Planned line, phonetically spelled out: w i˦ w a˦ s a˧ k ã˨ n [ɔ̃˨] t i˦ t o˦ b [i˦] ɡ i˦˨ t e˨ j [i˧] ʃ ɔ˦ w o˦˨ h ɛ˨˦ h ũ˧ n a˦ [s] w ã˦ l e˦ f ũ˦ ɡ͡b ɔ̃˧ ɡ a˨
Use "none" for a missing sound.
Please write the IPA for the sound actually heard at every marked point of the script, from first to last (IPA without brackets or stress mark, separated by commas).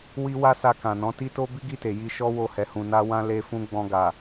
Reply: ɔ̃˨˦, i˦, i˧, none